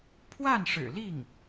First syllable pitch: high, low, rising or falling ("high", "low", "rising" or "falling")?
falling